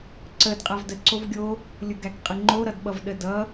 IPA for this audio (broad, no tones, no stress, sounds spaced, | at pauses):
ǀ ə d qʼ a v d ə ǀ o v ɡʲ o | lʲ ʊ ɡ æ k qʼ ə ŋ͡ǃ o ɾ ʌ d ɓ ʌ v ɗ ə d ʌ